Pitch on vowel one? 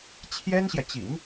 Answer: high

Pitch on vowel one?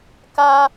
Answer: high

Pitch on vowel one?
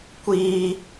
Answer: high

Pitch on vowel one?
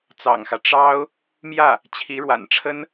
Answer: low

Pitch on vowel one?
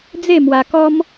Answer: falling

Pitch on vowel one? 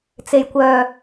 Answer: low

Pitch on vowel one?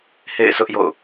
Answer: falling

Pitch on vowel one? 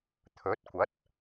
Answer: rising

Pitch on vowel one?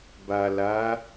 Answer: low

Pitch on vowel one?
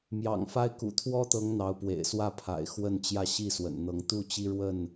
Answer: low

